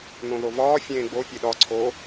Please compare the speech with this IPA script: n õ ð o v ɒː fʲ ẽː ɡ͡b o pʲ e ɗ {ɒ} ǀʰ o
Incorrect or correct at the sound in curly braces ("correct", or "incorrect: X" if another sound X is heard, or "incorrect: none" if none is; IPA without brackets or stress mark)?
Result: correct